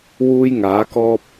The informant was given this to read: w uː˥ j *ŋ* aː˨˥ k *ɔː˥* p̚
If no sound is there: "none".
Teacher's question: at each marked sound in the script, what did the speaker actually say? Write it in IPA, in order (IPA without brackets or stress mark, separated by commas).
ŋ, ɔː˥